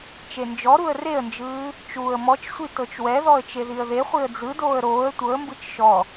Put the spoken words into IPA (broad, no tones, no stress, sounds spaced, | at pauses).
t͡ʃ e n d͡ʒ ɔ ɾ u ə̯ r e ə̯ n d͡ʒ ɯː | t͡ʃ uː ə̯ m ɔ t͡ʃ sʷ i t ɤ t͡ʃ w ɛ ð ɔ ə̯ t͡ʃ e ð i ə̯ ð e χʷ i ə̯ d͡z ɯ d oː ə̯ ɾ oː ə̯ tʷ ɤ ə̯ m b ɯ t͡ʃ ʃ ɔ